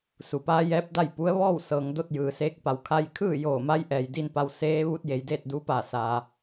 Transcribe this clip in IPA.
s u˩ p aː˧˥ j ɛː˧˥ p̚ d a˥˨ j p u˧˥ ə̯ ʋ ɔː˥˨ w s ɤː˩˧ ŋ d o˧ t̚ j ɯː˩ s eː˧˥ k̚ p a˩ w kʰ a˧ j kʰ ɯː˥˨ j oː˧˩ m a˧˥ j ʔ ɛː˩ j d i˧ n p a˧ w s eː˧˥ ʋ u˧˥ t̚ j e˩˧ j d eː˥˨ t̚ d u˧˥ p a˧˩ s aː˩

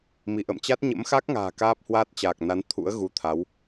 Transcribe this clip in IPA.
m i˧˩ ʔ ə̰˧˨ m t͡ɕ a˦˥ t̚ ɲ ə̰˧˥ m x a˦˥ k̚ ŋ a̤ː˨˩ k aː˦˥ p̚ h w aː˦˥ t̚ t͡ɕ aː˨˩ k̚ n a˨˦ n t̪ʰ ṵ˧˥ ə̯ ɣ u˨˦ t̪ʰ a˨˦ w

